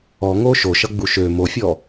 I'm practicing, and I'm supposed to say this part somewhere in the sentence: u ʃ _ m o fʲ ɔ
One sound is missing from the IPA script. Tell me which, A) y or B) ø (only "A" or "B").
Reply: B